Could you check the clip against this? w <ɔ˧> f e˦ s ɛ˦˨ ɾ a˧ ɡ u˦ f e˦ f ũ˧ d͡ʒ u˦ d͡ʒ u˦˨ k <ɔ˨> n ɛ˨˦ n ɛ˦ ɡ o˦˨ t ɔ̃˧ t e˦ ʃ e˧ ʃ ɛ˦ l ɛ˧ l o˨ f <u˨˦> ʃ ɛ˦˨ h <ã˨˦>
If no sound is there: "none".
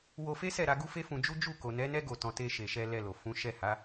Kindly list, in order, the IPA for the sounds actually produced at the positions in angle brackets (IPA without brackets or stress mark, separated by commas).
o˧, o˨, ũ˨˦, a˨˦